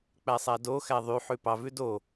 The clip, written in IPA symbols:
k͡p æ sˤ æ d o x æ ðˤ y ħ ʉ p ɑ v ʉ d o

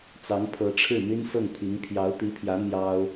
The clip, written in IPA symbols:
t͡s ɑ˧˥ ŋ pʰ ɤ˧˥ ʈ͡ʂʰ ɻ̩˥˩ n̪ y˥ n s ɤ˥˩ ŋ pʰ i˧˥ ŋ pʰ j ɑ˧˥ ʊ̯ t̪ i˧˥ pʰ j ä˧˥ n̪ j ɑ˥ ʊ̯

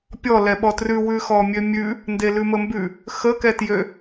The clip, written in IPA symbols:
pʲ ɔ l ɛ ɓ ɔ t r ʉ w ʉ x ɔ mʲ ø mʲ ʉ | n d e l ʉ m ə m b ʉ | x ə k ɛ t j ø

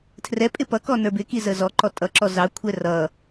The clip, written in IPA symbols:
tʰ r ɛ pʼ ɪ p ʌ k ɔ n ə˞ b ɪ k i z ə z ɔ ǃ ɔ tʼ ʌ ǁ ɔ z ɑ kʷʰ ɛ r ʌ

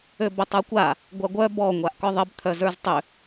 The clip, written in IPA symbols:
ø b ʏ tˤ ə˞ kʷ a | ɡʷ a ɡʷ œ b ɔ ŋʷ a ʔ k ɔ ðˤ ə b t̪ʰ œ z ə˞ z tˤ ʏ

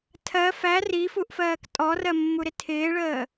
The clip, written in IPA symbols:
tʰ ɜ f æ r i f u ʔ f ɜː k tʼ ɔ r ɜ mː u ɾ ɪ tʰ ɪː ɭ əː

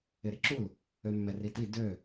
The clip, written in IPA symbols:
ɪ ɾ ɪ ǁ u l | ø mː ɛ r i t i d ø

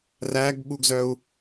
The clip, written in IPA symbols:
r æ ɡ ɓ u ɡ z œ u̯

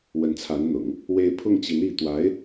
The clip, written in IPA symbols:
w ə˧˥ n t͡sʰ a˧˥ n n̪ ʊ̰˨˩˦ ŋ | w e˥˧ ɪ̯ pʰ ʊ˥˩ ŋ t͡ɕ i˧˥ n i˧˥ t̪ w a˧˥ ɪ̯

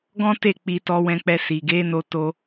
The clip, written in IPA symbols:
ɡ ɔ̃˦ t e˦˨ k͡p i˧ t ɔ˧ w ɛ̃˧ k͡p ɛ˧ s i˨ ɡ e˨˦ n o˧ t o˧

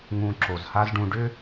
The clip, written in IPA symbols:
ŋ ũ˧ ǁ o˩ z h a˥ z ɖ ũ˧ ɖ ʏ˥

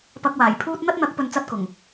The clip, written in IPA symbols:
p ɐ˧ k̚ w aː˨˩ j pʰ uː˥ t̚ n̪ ɐ˥ t̚ n̪ ɐ˨˥ k̚ p ɵ˧ n t͡s ɐ˥ t̚ k ʊ˨˩ ŋ

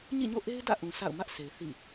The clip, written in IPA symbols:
ɲ ḭ˦˨ ɲ o̰˦˨ ʔ e˦ ɪ̯ d ä̰˦˨ ʔ ũ˨ s a̰˦˨ ʊ̯ m ä˦ ʔ s e˨ ɪ̯ θ ḭ˦˨

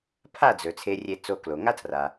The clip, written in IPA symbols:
pʰ a˥˩ d͡z ɵ˩ t͡sʰ e˧ rʲ e˧ t͡s o˧ k l o˩ ŋ a˥ tʰ r a˩

